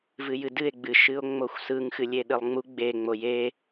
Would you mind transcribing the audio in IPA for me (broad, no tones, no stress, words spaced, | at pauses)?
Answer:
vɨjɨdɨe̯ ɡ͡bɨ ʃɨo̯ŋ͡moxʷsɯŋ xɨlʲeɗɨlˠŋ͡mu ɡ͡be ŋ͡moje